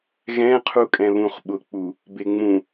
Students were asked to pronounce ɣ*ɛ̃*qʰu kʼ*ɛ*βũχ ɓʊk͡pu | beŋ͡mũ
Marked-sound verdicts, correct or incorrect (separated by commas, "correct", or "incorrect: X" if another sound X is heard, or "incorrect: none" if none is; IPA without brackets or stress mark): correct, incorrect: ɛ̃